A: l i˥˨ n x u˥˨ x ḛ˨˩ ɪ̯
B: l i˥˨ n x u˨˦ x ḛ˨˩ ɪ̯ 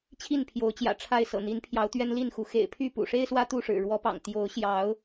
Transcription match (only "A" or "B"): B